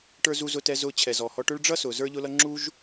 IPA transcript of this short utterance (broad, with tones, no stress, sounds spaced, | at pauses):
ʈ ə˞˧ z u˧ z ʊ˧ t ɛ˧ z ʊː˧ t͡ɕʰ ɛ˩ z ɔ˩ h ɔ˧ ʈ ʊ˥ ɭ ɖ͡ʐ ʌ˥ s ʊː˩ z ə˞˥ ʎ ʊ˥ l ʌ˥ ŋ͡ǁ u˥ ʒ